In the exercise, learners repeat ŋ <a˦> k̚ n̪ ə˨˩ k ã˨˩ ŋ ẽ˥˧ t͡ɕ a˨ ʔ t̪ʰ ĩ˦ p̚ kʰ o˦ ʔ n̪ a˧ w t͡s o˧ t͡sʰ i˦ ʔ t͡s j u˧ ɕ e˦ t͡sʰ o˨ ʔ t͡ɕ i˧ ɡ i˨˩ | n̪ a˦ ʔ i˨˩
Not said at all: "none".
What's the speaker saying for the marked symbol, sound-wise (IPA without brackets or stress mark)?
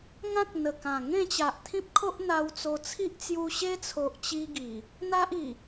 ã˦